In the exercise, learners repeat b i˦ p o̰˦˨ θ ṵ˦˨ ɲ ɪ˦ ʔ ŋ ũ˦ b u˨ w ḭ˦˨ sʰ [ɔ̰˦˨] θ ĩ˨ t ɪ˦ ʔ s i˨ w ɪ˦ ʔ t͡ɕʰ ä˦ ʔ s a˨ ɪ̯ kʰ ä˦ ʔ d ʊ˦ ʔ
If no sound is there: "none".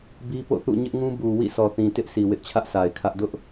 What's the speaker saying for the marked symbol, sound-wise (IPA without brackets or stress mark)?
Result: ɔ˨